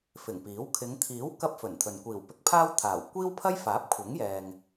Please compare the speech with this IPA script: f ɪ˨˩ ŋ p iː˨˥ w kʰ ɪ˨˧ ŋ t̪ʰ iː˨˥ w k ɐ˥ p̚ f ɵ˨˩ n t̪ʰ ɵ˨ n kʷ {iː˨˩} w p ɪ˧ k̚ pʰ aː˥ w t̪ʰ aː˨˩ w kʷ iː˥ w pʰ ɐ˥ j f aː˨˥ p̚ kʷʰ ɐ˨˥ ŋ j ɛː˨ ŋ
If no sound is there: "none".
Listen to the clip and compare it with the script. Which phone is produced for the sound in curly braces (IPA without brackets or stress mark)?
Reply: iː˨˩